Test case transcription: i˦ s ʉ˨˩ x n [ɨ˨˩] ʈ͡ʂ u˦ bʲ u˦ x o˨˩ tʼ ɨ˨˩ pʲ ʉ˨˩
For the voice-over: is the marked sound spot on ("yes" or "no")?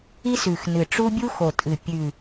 yes